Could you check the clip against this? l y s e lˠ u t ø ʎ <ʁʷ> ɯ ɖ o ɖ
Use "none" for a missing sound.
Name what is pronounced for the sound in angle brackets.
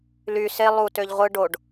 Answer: ʁʷ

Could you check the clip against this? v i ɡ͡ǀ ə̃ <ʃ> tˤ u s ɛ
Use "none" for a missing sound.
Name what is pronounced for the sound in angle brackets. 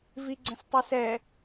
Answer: s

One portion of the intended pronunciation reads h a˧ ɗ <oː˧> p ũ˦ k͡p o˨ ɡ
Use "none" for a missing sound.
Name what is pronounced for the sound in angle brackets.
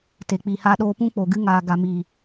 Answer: oː˧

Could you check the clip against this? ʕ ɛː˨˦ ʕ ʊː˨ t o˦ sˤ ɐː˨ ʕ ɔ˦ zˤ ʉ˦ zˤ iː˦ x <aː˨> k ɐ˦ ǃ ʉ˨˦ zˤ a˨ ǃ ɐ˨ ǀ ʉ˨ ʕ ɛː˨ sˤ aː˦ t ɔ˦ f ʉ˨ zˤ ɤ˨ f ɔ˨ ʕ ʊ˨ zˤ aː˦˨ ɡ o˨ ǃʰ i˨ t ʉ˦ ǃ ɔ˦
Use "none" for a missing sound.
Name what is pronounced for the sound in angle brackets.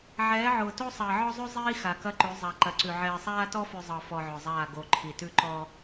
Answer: a˨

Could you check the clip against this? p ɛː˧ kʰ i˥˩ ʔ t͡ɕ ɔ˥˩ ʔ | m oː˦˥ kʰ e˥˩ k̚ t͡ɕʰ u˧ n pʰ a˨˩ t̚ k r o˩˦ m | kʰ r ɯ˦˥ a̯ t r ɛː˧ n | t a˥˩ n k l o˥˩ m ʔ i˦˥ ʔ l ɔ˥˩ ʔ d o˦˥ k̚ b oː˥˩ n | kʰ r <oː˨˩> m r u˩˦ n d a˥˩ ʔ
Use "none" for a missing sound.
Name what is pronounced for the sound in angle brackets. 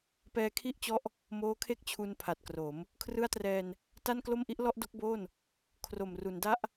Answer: o˨˩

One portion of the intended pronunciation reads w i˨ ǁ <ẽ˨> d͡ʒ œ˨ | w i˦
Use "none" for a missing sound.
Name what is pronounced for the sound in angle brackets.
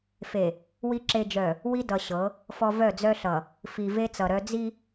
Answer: e˨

